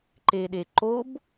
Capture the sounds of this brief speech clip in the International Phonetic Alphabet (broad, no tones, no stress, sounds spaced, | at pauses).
ǃ e ɗ e ǃ o b